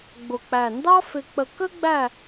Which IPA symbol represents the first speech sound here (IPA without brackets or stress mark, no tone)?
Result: ɡ͡b